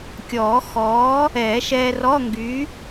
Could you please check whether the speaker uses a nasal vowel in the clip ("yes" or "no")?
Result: no